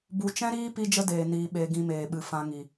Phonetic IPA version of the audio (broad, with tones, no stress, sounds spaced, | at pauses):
b u˨ t͡ʃ ɛ̃˦ ɾ iː˦ p i˦ d͡ʒ ə˦ d eː˨ n iː˨ ɓ e˨ ɡ ĩ˧ m eː˨ ɓ ɨ˨ f ã˧ ŋ i˨